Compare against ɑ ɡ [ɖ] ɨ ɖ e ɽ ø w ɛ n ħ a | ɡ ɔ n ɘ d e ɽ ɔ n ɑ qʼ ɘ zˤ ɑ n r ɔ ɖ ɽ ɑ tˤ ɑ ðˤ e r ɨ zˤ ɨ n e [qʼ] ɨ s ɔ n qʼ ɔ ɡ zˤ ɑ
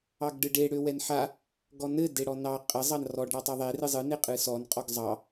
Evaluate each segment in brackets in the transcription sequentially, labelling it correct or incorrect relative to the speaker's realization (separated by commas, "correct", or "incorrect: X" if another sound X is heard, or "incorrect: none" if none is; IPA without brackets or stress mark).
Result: correct, correct